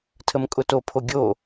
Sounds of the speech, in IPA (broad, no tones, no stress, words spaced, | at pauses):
tʰəmkʼʊtopʰo ɡʲo